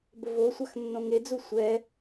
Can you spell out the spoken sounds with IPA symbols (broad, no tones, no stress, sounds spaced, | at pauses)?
b ə v o sʷ a x nː õ ŋ e d͡z u sʷ ɛ